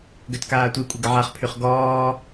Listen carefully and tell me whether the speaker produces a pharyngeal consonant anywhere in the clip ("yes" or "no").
yes